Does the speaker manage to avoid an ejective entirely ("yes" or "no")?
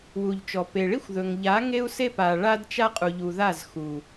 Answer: no